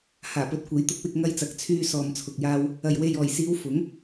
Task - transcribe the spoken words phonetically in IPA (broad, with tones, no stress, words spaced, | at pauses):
haː˨˩pɵ˨˥t̚kʷe˨˥jt̪ʊ˧k̚ wɪ˧k̚ŋɐ˧jt͡sɐ˨˥k̚ t͡sʰyː˧ sɔː˨mt͡sʰʊ˨k̚jaː˧w | ɐ˨˩jwe˨jɔː˨˩jsiː˨˧w fʊ˨˥ŋ